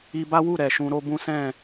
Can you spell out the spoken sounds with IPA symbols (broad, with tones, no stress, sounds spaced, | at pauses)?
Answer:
i˧ b a˦ w u˦˨ ɾ ɛ˨ ʃ ũ˧ ɾ o˧ b ũ˦ s ɛ̃˦˨